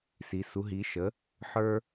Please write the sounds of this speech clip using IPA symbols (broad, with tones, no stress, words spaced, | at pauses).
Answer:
si˩˥ su˩˥ɦi˩˥ʃə˩˥ | ħə˞˥